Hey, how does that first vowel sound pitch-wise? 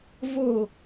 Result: falling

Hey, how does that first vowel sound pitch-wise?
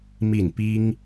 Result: falling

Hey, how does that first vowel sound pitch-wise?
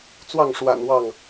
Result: falling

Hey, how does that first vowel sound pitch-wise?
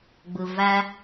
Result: low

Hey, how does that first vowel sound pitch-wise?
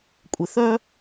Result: low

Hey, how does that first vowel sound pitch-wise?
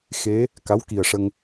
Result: rising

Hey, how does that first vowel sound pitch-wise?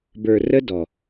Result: low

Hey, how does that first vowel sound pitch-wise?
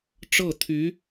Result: falling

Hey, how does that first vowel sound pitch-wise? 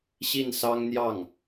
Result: falling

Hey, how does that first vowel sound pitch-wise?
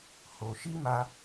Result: low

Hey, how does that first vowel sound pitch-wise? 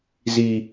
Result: low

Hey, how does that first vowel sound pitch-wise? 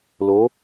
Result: rising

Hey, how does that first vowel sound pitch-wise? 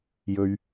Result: low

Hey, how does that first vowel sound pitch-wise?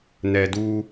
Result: low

